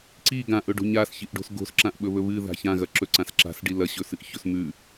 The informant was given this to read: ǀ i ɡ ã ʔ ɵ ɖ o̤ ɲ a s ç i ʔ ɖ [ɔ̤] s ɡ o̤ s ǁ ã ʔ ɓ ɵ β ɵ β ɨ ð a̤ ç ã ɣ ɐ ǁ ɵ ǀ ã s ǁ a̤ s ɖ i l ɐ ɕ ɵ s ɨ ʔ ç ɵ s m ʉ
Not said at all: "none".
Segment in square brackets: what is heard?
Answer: o̤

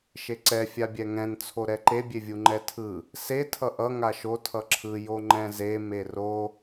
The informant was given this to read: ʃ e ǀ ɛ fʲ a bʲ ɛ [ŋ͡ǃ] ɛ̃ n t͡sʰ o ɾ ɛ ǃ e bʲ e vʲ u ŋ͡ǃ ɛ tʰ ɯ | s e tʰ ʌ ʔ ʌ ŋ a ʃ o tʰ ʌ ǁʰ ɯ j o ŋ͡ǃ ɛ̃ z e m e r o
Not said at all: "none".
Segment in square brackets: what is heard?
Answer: ŋ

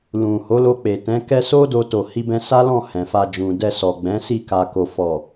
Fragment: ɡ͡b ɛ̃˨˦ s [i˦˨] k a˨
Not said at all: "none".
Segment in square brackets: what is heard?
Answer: i˦˨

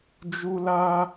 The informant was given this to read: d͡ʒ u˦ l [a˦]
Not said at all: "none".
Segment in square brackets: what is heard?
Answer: a˦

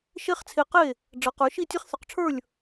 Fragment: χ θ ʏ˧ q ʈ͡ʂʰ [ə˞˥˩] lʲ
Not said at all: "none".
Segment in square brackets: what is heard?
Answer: ə˞˥˩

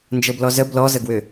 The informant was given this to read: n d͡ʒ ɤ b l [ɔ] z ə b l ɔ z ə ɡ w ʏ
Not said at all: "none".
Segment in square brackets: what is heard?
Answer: ɔ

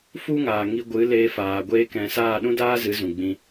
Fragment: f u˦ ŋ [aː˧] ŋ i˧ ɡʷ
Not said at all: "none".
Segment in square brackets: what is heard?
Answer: aː˨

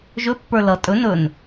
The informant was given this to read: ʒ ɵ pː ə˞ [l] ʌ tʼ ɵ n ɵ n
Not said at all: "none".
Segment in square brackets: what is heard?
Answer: l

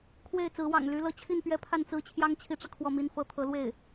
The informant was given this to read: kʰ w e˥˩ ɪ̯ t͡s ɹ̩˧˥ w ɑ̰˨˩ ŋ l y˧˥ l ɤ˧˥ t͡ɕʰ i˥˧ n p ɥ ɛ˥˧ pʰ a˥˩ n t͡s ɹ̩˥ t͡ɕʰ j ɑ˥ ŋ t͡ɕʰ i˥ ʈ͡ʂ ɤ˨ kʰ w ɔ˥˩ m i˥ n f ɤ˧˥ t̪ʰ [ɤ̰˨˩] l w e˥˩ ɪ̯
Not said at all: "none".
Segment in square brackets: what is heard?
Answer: ɤ˧˥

